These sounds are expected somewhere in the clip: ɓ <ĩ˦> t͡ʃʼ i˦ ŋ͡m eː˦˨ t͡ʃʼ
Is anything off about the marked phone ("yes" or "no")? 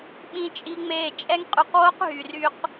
no